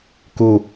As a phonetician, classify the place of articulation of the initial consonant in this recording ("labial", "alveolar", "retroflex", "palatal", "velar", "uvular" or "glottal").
velar